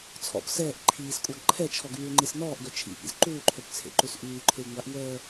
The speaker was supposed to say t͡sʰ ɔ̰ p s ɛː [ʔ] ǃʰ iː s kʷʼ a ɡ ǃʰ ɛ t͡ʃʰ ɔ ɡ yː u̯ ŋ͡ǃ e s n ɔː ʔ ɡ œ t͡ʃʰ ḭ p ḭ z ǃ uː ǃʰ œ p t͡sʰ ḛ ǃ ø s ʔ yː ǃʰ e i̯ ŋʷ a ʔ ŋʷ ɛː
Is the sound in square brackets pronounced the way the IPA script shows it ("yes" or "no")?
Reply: yes